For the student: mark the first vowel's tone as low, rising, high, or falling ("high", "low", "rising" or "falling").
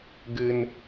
low